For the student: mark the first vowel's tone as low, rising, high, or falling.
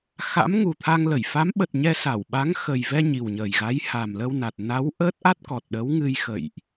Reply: rising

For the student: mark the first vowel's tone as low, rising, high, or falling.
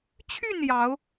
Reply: falling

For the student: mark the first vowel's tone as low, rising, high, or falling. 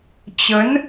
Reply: rising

